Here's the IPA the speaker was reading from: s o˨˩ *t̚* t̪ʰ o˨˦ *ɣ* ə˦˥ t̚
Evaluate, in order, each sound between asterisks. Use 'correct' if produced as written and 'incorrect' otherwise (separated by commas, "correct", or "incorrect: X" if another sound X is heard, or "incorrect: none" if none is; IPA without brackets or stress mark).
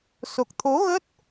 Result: incorrect: k̚, correct